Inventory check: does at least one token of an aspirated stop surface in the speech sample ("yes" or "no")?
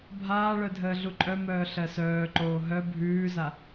no